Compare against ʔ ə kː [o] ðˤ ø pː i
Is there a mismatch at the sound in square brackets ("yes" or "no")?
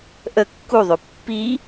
yes